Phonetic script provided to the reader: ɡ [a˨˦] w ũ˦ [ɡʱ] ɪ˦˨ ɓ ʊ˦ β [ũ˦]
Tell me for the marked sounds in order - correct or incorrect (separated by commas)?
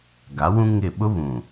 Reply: correct, incorrect, incorrect